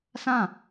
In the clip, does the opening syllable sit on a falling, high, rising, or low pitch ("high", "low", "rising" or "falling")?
falling